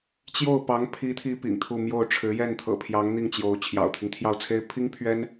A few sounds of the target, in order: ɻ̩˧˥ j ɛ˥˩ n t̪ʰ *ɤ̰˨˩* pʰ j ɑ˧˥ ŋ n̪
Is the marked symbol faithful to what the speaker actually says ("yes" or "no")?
yes